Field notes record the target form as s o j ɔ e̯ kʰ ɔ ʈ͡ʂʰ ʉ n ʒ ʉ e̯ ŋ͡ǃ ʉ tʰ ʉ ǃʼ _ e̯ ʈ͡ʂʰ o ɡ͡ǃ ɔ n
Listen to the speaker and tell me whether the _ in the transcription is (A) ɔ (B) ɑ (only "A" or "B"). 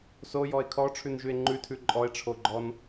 A